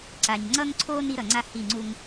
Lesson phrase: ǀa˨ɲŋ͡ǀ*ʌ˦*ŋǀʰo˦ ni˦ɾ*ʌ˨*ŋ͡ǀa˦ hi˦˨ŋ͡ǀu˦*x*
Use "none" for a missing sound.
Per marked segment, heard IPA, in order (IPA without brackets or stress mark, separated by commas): ʌ˦, ʌ˨, ŋ